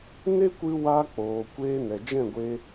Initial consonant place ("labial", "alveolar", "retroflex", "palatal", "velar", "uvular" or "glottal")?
alveolar